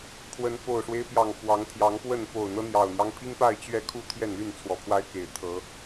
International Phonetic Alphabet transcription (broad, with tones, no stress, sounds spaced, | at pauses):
pʰ w ə˨˦ n f o˨˩ ʊ̯ ʂ w e˦ ɪ̯ p j ɑ˨˩ ŋ f w ɑ˨˦ ŋ t̪ʰ j ɑ˨˦ ŋ p w ə˥˨ n p o˨˩ ʊ̯ n̪ ɤ˦ n̪ j ɑ˨˩ ʊ̯ n̪ j ɑ˦ ŋ pʰ i˦ ŋ p a˥˨ ɪ̯ t͡ɕ ɥ ɛ˥˨ kʰ u˥˨ t̪ʰ j ɛ˥˨ n l y˥˨ n t͡sʰ w ɔ˨˩ pʰ w a˦ ɪ̯ k e˨˩ ɪ̯ t̪ʰ ɤ˨˦